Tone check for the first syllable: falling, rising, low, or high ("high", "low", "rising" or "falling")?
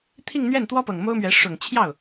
falling